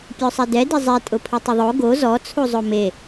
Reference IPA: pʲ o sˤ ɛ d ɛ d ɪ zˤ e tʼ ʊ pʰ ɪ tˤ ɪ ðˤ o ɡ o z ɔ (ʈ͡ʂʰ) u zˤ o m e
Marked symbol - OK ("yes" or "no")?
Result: no